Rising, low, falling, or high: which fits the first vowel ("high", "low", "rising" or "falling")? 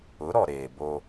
rising